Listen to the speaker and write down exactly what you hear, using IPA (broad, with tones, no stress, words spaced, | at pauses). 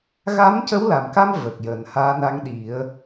ɣa˧˥mcə˧˥wla˨˩mka˧m və˨˩k̚jəː˨˩˨nhaː˧˥na˧˥ŋ ɗi˨˩˦ə̯